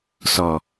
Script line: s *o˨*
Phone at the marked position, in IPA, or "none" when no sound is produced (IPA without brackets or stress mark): ɔ˨